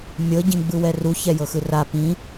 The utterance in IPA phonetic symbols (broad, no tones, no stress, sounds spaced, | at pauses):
mʲ ɤ ɟ ĩ ɡ͡b ɯ w ɛ r u ç ɛ j ɤ x ɯ r a p ĩ